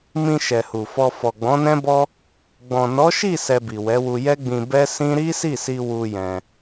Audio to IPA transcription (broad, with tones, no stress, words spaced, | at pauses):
mĩ˧ ʃɛ˨hu˨fɔ˧ fɔ˨ɡ͡bɔ̃˨˦nɛ̃˦bɔ˦ | ɡ͡bɔ̃˨nɔ˨˦ʃi˦˨ sɛ˧bi˨wɛ˨˦wu˧ jɛ˦ɡ͡bĩ˧ bɛ˦sĩ˦ ɾi˦si˦˨si˧ wu˧jɛ̃˧